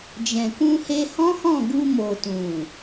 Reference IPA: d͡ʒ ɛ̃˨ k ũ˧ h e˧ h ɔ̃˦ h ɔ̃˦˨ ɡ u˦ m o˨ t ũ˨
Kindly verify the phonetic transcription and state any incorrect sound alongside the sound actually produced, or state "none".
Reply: u˦ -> u˧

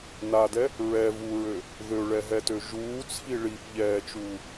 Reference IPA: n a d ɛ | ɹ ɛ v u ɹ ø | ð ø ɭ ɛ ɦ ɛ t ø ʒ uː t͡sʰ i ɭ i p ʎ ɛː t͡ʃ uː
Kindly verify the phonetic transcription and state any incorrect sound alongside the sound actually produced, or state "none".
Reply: none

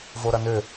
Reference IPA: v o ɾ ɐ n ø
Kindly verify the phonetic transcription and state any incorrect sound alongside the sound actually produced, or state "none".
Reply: none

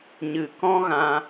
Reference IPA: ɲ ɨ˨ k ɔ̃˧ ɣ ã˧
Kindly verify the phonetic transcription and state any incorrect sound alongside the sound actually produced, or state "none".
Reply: none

